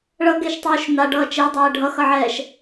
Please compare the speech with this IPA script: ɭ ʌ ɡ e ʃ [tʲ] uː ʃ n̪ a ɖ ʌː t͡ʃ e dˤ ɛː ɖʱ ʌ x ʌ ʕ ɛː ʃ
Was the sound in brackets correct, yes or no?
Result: no